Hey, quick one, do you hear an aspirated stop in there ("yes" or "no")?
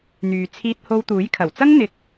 yes